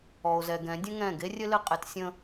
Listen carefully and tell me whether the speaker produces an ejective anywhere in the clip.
yes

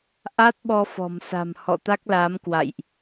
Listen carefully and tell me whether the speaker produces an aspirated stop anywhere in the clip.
no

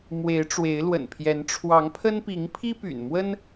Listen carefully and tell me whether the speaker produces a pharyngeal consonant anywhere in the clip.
no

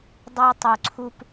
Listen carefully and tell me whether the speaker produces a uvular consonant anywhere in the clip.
no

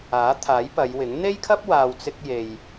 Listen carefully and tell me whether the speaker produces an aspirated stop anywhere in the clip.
yes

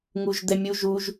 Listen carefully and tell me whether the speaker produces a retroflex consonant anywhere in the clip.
no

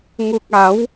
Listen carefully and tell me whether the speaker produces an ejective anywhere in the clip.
no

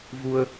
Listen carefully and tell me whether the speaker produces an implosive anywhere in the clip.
no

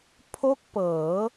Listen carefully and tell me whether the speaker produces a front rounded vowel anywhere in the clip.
no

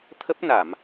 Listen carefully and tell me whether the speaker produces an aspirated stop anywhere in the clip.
yes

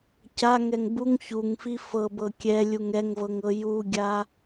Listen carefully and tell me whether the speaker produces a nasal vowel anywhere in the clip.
no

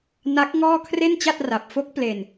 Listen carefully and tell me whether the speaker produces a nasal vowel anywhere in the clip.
no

